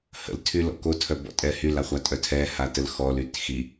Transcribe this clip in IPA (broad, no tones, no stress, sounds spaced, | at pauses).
h ə̰ l tʰ y l ɔ̰ k o tʰ œ b ɔ̰ tʼ ɛ h y l a χʷ a tʼ œ tʰ ɛ h a t ə l x ɔ l y t x i